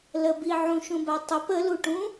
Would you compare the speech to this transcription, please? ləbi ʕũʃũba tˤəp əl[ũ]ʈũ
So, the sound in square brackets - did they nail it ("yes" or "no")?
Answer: no